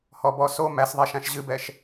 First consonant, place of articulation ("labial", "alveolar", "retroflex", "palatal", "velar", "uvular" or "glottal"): glottal